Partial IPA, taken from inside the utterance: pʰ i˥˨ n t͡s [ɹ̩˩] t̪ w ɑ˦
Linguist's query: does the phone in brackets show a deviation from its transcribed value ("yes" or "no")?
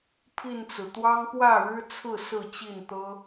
no